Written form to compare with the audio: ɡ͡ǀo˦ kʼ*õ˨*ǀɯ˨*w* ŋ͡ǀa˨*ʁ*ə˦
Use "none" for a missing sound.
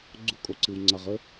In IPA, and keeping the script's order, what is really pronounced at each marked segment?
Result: o˨, w, ʁ

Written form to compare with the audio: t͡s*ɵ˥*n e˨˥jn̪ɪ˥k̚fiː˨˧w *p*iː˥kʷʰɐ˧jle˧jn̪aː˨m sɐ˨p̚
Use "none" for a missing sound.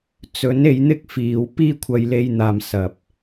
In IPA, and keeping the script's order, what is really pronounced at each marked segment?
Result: ɵ˨˥, p

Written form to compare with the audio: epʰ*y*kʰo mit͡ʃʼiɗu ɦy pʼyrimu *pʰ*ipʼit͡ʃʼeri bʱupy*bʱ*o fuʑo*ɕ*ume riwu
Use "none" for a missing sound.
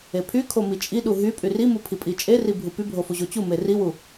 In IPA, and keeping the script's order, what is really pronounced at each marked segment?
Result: y, pʰ, bʱ, t͡ɕ

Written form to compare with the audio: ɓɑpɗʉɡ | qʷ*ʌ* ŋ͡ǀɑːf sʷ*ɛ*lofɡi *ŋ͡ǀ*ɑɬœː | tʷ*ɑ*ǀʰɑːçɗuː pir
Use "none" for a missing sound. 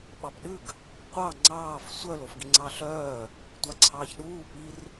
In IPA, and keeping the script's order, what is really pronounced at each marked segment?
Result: ɑ, œ, ŋ͡ǀ, ɑ

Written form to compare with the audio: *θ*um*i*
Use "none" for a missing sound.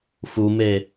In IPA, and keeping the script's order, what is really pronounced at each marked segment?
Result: f, e

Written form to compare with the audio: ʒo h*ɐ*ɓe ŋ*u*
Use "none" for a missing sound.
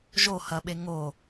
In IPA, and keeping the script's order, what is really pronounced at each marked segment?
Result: ɐ, o

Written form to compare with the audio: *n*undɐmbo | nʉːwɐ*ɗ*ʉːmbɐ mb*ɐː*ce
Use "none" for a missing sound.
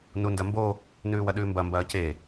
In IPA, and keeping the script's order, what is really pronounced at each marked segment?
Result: n, ɗ, ɐː

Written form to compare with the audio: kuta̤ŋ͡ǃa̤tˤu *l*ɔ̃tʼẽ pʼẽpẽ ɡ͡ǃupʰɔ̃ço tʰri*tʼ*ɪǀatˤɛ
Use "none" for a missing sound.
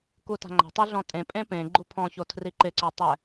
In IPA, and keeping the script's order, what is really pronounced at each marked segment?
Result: ɮ, ǃ

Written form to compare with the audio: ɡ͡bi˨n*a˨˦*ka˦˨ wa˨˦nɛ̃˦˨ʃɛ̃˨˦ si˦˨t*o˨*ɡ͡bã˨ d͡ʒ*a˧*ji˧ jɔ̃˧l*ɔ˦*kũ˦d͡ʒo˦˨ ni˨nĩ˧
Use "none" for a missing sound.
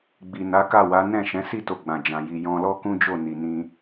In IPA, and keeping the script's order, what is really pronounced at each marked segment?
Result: a˨˦, o˧, ã˧, ɔ˦

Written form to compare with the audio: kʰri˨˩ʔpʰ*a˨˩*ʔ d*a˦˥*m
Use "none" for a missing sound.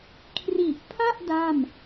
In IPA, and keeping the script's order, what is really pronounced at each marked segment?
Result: a˥˩, a˥˩

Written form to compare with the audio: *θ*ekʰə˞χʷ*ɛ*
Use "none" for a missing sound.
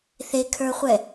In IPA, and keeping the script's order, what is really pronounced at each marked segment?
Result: θ, ɛ

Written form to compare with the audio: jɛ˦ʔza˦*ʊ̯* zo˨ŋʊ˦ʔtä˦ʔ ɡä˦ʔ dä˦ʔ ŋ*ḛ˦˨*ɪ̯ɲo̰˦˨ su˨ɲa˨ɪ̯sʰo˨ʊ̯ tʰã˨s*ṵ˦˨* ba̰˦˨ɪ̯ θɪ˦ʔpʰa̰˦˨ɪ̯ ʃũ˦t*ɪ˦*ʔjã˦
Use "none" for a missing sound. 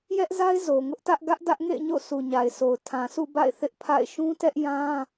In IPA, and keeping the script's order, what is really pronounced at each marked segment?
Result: ɪ̯, ḛ˦˨, ṵ˦˨, ɛ˦

